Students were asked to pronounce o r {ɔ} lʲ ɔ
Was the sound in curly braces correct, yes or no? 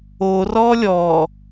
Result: yes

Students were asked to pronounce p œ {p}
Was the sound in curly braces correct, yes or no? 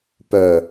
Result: no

